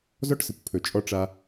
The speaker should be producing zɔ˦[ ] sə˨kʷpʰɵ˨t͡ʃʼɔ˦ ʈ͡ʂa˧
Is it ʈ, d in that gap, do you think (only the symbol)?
ʈ